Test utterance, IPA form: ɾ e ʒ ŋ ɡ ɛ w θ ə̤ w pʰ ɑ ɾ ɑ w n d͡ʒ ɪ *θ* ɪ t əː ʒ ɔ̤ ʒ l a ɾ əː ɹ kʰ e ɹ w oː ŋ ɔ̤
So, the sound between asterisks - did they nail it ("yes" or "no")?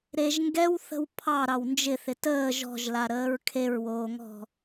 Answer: yes